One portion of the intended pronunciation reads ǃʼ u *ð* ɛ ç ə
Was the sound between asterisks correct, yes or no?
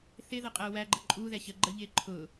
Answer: yes